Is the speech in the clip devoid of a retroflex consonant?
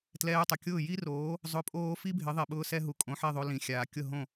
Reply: yes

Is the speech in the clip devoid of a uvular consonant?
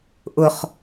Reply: no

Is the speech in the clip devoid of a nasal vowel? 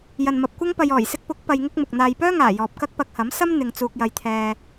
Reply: yes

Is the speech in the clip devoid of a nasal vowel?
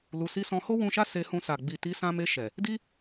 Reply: no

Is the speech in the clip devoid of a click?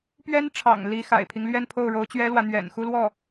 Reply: yes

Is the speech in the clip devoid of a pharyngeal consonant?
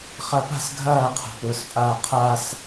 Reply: yes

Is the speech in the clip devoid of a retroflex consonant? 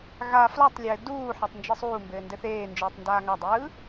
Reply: yes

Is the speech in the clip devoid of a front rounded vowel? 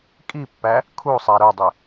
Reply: no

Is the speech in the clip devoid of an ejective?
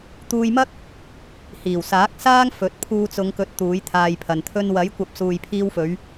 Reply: yes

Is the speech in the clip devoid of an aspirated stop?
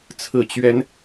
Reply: no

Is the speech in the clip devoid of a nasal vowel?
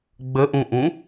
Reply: no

